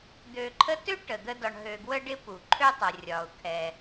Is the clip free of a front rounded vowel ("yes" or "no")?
no